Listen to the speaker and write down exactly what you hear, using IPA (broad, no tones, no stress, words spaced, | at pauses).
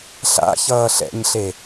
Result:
ɬa̰ çʌːɬɛ̰ɲɬe